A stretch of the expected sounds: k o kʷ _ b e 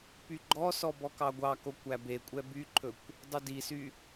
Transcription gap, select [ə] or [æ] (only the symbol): æ